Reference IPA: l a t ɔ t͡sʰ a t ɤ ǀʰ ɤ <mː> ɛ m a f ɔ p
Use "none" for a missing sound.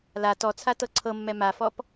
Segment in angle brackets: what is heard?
mː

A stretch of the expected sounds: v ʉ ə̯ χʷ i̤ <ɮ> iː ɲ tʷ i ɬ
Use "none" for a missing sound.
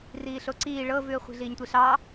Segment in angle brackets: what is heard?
ɮ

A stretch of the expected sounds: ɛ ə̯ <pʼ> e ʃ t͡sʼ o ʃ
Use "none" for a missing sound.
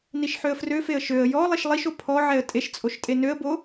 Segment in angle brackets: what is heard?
tʼ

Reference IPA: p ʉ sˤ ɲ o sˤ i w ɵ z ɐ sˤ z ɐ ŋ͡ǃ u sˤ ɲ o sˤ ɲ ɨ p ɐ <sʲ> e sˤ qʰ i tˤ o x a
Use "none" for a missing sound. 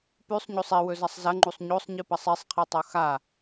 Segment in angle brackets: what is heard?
sˤ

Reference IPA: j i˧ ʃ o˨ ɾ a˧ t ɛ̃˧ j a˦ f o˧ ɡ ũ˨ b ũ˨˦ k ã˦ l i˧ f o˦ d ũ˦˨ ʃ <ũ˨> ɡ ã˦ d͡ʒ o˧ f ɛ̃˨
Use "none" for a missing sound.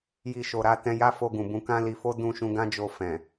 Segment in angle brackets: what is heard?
ũ˧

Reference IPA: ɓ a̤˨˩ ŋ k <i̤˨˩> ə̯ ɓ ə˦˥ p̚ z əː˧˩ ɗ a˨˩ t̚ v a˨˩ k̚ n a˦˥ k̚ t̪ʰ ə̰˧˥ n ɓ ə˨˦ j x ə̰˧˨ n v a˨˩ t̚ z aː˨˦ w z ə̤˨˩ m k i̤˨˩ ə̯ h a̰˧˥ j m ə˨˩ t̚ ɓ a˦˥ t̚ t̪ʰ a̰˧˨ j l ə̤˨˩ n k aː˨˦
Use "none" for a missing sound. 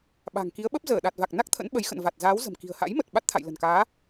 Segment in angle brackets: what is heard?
i˨˦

